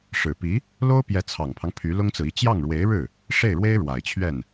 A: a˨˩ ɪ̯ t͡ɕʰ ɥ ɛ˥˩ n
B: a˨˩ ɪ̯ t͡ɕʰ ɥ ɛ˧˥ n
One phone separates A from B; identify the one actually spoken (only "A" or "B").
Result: A